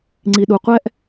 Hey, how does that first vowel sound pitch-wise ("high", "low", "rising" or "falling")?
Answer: low